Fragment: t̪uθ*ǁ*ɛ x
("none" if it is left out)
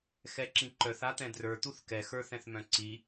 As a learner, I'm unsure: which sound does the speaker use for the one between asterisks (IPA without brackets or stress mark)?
k